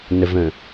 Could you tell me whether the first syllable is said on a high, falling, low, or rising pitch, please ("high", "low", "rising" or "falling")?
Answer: low